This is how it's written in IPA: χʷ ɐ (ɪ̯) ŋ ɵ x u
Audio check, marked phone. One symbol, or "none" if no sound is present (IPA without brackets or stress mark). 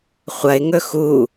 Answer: ɪ̯